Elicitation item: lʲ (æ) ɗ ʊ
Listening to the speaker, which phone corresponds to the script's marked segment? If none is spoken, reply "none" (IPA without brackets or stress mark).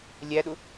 æ